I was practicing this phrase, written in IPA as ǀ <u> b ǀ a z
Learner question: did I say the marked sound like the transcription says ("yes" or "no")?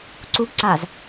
yes